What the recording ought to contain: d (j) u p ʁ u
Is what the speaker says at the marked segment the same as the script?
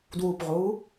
no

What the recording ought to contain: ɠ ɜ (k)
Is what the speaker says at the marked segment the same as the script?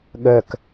yes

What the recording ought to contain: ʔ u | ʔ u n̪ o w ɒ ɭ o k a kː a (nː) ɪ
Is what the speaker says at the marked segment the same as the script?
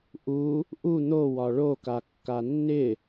yes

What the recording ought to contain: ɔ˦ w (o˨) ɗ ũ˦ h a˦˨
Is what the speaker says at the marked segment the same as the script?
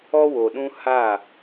yes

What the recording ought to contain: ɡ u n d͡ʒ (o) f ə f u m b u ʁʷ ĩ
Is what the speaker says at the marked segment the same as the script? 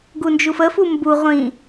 no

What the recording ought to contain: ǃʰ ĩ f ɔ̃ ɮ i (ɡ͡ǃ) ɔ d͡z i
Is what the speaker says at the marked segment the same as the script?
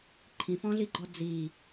yes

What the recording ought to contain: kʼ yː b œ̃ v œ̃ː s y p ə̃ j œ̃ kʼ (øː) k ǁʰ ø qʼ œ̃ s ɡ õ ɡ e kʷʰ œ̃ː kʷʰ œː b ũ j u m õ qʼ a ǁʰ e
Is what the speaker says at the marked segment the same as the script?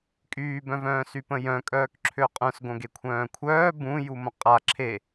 no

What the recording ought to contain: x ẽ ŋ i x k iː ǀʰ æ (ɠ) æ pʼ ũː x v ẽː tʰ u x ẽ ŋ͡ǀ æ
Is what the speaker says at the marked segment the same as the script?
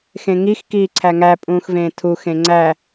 no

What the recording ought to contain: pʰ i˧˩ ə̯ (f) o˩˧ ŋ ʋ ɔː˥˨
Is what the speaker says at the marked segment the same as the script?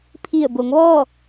no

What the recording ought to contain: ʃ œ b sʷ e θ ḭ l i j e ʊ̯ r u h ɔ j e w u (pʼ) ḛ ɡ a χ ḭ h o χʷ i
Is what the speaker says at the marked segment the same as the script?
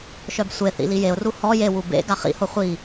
no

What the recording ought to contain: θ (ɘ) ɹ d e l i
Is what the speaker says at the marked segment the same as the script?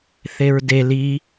no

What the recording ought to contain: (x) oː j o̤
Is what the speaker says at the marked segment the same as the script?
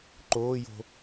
no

